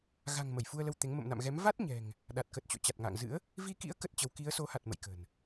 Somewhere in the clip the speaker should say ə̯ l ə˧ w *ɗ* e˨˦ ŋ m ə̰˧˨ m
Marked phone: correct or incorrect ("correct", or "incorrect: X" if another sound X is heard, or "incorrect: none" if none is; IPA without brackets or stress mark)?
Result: incorrect: t̪